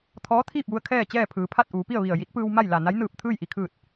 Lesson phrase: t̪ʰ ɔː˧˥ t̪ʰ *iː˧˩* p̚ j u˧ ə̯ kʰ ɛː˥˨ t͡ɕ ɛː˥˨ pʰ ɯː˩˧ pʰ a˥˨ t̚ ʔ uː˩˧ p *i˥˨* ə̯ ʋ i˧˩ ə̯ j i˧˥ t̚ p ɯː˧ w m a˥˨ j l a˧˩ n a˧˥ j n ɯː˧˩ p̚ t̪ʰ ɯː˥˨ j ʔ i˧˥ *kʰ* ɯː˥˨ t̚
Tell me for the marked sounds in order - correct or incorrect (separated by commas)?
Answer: incorrect, correct, correct